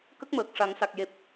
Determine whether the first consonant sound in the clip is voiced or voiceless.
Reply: voiceless